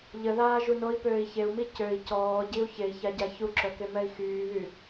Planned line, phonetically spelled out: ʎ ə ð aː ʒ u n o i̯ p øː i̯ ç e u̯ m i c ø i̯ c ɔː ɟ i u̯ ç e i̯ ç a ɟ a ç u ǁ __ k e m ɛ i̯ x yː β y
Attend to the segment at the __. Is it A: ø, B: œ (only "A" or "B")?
B